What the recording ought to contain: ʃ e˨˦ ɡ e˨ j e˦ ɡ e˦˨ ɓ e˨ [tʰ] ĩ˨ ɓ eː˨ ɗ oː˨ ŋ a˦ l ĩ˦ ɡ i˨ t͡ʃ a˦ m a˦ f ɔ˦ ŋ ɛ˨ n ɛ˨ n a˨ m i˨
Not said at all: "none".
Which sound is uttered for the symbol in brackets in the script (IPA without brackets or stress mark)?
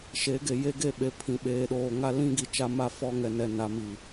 pʰ